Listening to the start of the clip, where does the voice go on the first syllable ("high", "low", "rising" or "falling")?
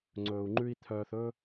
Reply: low